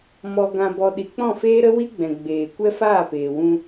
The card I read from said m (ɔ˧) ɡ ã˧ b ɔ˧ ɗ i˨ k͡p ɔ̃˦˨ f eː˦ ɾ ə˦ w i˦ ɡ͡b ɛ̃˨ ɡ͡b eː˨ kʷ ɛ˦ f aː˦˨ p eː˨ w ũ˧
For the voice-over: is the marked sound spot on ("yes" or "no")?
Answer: yes